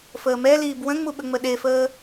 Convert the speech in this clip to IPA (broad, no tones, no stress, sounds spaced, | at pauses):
f əː m ɛ l iː b w ə̃ ŋ͡m u ɓ ə ŋ͡m ə ɗ e f əː